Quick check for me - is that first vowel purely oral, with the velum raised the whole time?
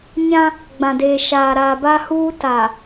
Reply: no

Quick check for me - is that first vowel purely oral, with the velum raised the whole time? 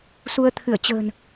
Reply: yes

